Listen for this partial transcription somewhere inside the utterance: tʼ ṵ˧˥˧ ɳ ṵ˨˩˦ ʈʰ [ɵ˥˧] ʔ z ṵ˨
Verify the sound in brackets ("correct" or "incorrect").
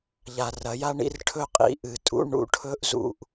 incorrect